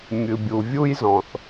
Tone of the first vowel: low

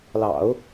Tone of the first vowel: low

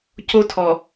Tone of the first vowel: high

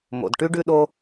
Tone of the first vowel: low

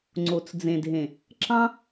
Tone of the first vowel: low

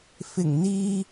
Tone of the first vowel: low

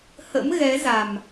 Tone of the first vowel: rising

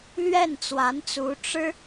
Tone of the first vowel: falling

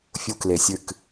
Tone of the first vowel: high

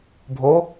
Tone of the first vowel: rising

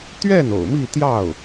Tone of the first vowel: falling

